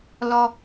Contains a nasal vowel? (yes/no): no